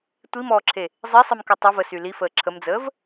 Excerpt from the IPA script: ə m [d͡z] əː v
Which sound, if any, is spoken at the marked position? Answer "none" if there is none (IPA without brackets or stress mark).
d͡z